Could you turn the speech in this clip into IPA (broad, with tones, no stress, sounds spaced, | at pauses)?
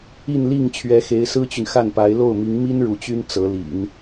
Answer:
i˥˧ n l i˥˩ ŋ t͡ɕʰ ɥ ɛ˧˥ x e˧˥ ɪ̯ s ɹ̩˥ t͡ɕ y˨ n x a˥˩ n p a˧˥ ɪ̯ l o˥˩ ʊ̯ m i˧˥ ŋ m i˥ n ɻ u˧˥ t͡ɕ y˥ n t͡s ɤ˧˥ l ḭ˨˩˦ n